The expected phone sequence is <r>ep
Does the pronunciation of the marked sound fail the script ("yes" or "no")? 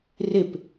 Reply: no